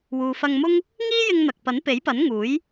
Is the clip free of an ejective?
yes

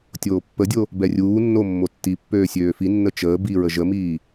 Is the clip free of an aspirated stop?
yes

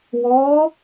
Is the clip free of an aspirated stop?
yes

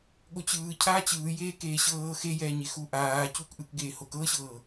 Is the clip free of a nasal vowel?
yes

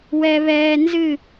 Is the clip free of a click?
yes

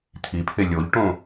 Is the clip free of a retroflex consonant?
no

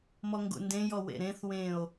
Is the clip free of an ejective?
yes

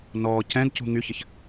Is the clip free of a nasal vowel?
no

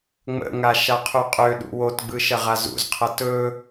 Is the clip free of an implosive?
no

